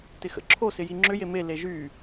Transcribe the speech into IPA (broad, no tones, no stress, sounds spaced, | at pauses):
t ɪ x ə̰ ǁʰ o s ɪ j i ŋ͡ǁ ʏ j e m e l e ʒ y